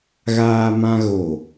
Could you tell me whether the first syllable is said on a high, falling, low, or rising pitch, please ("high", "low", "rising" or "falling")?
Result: high